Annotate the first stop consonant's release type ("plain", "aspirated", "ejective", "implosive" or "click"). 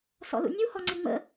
click